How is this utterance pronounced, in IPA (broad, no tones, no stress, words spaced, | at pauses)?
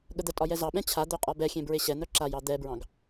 ɠəd̪ətʼɒ jɛzɑɓɛ̃ t͡ɕʰad̪œ qʼɒbɛxʲẽ bɹeɕɛn̪œ ǁajɑ d̪ɛbɹɑ̃ɡ